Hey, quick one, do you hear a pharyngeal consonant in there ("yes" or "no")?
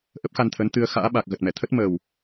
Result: no